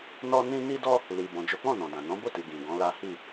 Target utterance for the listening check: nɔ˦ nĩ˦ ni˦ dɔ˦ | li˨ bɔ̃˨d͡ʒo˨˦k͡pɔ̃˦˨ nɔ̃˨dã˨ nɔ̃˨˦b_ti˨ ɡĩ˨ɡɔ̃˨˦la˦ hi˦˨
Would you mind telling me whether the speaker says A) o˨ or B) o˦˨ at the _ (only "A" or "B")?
B